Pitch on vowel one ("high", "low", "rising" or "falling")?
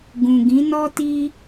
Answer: low